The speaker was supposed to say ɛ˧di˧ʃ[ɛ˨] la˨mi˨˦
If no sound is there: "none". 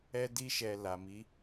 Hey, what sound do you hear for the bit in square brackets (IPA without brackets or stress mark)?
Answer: ɛ˨